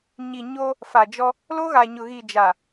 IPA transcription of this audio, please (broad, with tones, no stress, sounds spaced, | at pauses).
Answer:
ɲ i˨ ɲ o˦ | f a˨ d͡ʒ ɔ˦ | l oː˦ ɣ a˨ ɲ ʊ˨ ɣ iː˨ d͡ʒ a˨